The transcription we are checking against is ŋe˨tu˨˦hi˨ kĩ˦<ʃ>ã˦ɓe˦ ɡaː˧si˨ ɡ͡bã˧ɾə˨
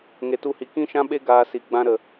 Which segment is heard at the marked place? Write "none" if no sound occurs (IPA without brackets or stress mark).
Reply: ʃ